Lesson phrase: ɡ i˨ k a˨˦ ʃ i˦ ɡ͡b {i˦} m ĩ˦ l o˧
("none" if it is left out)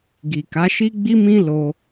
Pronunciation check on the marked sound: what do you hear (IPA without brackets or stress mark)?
i˦